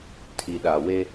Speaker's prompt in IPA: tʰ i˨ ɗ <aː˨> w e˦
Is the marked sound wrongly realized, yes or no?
yes